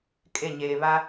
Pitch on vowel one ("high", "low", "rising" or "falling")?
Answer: falling